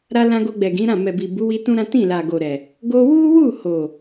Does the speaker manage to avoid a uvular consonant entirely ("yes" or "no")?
yes